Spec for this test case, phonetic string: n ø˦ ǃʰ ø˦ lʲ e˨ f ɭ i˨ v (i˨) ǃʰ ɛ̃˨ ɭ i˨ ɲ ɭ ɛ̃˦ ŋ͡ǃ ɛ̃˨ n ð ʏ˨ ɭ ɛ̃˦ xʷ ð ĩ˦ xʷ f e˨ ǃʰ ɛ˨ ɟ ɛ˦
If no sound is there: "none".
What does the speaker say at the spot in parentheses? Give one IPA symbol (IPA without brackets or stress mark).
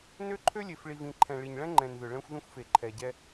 ĩ˨